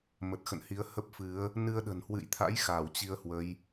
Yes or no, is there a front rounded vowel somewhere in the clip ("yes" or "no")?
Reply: no